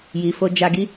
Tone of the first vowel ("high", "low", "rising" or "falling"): low